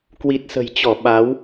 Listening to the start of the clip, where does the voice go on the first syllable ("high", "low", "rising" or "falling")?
low